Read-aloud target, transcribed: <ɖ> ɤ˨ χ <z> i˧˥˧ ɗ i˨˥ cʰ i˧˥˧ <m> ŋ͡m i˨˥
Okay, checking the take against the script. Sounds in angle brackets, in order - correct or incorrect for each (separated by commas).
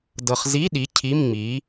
incorrect, correct, correct